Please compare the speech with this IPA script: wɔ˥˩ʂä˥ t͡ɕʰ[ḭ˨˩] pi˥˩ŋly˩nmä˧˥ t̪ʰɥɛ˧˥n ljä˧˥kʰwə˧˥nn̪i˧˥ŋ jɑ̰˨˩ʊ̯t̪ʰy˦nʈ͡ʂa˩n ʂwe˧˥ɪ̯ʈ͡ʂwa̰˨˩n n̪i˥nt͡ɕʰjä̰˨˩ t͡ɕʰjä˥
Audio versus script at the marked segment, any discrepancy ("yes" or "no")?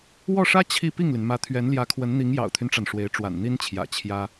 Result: yes